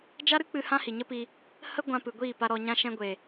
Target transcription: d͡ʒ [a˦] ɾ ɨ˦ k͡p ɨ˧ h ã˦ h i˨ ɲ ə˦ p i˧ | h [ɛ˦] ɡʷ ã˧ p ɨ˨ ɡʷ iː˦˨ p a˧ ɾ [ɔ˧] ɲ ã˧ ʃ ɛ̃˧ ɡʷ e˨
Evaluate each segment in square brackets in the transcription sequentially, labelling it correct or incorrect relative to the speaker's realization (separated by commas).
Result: correct, incorrect, correct